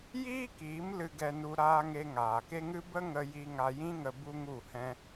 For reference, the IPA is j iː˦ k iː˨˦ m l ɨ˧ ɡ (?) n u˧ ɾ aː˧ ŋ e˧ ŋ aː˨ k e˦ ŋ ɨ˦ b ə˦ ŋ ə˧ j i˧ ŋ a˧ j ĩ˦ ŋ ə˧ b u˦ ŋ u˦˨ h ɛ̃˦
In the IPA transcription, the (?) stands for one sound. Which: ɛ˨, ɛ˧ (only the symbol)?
ɛ˧